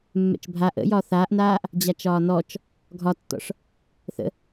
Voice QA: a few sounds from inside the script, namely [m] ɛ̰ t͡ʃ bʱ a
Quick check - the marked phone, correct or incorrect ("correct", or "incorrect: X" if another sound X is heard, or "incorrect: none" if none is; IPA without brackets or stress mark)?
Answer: incorrect: mː